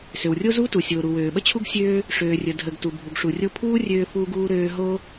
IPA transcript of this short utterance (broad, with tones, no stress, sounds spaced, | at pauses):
s ø˩ w rʲ o˥ z u˥ t u˩ sʲ oː˩ ɾ u˩ w øː˩ ɓ ə˥ t͡ɕʰ u˥ ɡ sʲ øː˥ | ʂ øː˩ rʲ ə˩ dʱ ə˩ ɡ t u˩ bʱ u˩ ɡ ʂ u˩ rʲ o˥ pʰ uː˥ rʲ øː˥ f uː˥ ɡ uː˥ ɾ øː˥ ɦ o˥